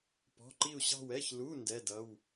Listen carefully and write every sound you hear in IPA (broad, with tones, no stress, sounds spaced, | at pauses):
p ɔ̤˧˥˧ ǃ i˥˧ u̯ ɕ ɑ̤˥˧ w ɛ˧˥˧ ç l u˧˥˧ n d ɛ˧˥˧ d ʌ˧˥˧ w